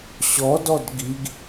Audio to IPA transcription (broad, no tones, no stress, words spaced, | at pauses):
ɕɔ dɔdɡiɡ